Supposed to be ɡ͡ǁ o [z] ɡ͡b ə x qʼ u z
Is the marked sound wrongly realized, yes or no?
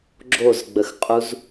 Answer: no